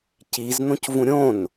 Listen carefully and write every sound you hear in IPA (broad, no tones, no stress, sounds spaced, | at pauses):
c i z n̪ õ c v ũ ɾʲ õ n